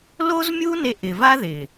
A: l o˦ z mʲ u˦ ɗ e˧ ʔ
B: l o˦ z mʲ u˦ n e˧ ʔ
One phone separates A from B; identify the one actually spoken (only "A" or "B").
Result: B